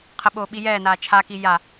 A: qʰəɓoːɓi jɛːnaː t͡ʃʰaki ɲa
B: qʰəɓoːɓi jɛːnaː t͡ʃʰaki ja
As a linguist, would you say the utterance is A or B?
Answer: B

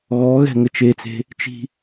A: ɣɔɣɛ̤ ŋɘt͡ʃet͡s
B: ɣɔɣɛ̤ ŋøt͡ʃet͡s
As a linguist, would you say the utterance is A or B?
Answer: A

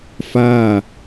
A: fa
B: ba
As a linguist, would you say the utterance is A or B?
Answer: A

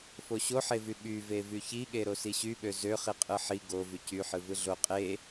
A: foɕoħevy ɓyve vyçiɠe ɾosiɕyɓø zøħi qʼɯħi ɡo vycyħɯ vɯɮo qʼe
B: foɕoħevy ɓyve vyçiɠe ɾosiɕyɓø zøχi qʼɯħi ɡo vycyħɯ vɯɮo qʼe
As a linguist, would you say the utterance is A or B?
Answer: B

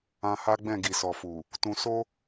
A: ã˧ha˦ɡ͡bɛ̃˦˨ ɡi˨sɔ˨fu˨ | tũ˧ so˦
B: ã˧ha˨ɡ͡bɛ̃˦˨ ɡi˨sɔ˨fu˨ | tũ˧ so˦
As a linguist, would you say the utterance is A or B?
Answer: A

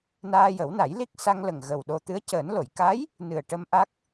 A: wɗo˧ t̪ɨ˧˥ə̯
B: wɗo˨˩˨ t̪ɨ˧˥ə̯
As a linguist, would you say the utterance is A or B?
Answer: A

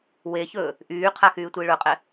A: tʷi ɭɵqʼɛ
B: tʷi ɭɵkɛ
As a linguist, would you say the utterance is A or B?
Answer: A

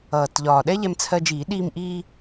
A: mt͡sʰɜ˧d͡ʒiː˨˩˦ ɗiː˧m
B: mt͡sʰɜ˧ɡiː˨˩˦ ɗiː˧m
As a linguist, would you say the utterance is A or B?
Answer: A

